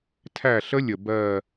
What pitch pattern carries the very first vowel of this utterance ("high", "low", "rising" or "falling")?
falling